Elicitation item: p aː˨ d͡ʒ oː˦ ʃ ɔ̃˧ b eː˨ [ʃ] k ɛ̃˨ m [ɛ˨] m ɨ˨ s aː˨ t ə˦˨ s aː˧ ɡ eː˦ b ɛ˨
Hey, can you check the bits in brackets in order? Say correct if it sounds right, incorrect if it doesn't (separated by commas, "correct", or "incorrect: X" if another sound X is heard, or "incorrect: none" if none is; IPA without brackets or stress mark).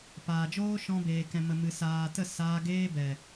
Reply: incorrect: none, incorrect: ə˨